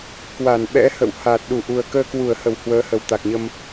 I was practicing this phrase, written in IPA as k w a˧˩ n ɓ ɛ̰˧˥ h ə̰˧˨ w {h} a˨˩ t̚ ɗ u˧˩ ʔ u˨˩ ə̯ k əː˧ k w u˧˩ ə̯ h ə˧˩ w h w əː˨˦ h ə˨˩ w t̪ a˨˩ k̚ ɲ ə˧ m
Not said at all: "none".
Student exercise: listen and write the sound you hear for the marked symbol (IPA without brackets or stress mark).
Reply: h